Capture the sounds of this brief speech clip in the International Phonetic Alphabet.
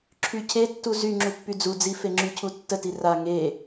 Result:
ǁʰ y cʰ e tː u z y ŋ͡ǁ u pː y d͡z u d͡z i f e ŋ͡ǁ y cʰ u tː ə t i r a ŋ e

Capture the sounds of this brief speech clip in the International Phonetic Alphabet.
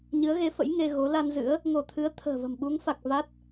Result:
ɲ ɨ˨˦ ə̯ ɣ e˨˦ f ə̰˧˥ j ŋ e˧ ɣ o˨˦ l a˧ n z ɨ̰˧˥ ə̯ | ŋ o˧˩ t̪ʰ ɨ˨˦ ə̯ t̪ʰ ə̤ː˨˩ v ə̤˨˩ m ɓ u˨˦ ŋ f a˨˩ k̚ v a˦˥ t̚

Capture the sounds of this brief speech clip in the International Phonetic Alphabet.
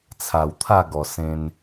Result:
t͡sʰ a˨˩ w t̪ʰ a˥˧ ɡ ɔ˨˩ s ẽ˧ n

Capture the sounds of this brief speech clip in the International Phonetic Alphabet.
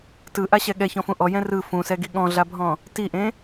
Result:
t ɯ ʔ a ɕ ɛ ɠ ɛ ç ɔ̃ f ũ ʔ ɔ j ɛ̃ r ɯ f ũ s ɛ ɡ i ɠ ɔ̃ ɮ a bʱ ɔ̃ | t i ʔ ẽ

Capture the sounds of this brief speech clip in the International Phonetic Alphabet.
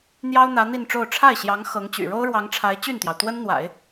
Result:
n̪ j ɑ˥ ʊ̯ n̪ ä˧˥ n̪ i˥˧ n ʈ͡ʂ o˥˧ ʊ̯ ʈ͡ʂʰ a˥˩ ɪ̯ ɕ j ɑ˧˥ ŋ x ɤ˧˥ ŋ t͡ɕ y̰˨˩ ɻ o˥ ʊ̯ ɻ w ɑ˧˥ ŋ ʈ͡ʂʰ a˧˥ ɪ̯ t͡ɕ y˥˩ n t̪ j ɑ˩ ʊ̯ t̪ w ə˥ n n̪ w a̰˨˩˦ ɪ̯

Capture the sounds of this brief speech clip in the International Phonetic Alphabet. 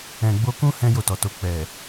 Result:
ɛ̃˨ ɡ͡b o˧ k ũ˦ h ɛ̃˦ j o˦˨ t ɔ˨ t o˧ k͡p ɛ˨

